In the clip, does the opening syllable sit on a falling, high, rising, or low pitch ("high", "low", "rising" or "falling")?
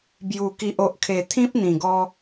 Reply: low